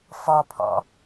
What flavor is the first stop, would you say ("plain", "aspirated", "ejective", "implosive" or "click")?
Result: aspirated